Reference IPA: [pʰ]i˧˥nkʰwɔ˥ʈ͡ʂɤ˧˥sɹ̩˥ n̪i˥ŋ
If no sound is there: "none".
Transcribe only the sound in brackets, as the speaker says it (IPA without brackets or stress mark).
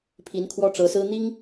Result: pʰ